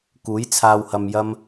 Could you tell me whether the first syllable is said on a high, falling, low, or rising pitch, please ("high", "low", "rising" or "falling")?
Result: rising